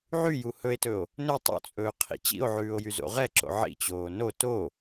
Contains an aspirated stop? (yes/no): yes